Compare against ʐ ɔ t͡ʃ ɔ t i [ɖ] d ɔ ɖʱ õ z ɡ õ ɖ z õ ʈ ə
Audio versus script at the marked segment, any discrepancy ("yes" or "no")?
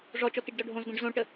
no